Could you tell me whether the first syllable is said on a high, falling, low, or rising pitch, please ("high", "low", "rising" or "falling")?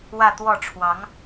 falling